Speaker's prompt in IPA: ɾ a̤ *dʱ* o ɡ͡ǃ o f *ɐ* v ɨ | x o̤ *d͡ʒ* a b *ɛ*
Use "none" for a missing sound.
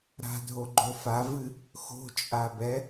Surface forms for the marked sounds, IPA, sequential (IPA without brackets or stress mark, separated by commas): dʱ, a, t͡ʃʼ, ɛ